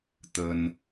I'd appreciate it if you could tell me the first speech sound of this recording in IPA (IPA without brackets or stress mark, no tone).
t̪